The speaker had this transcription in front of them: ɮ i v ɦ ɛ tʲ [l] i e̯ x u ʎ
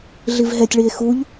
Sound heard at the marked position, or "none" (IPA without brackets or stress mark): ɭ